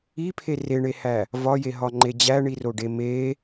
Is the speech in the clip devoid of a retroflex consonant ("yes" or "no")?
no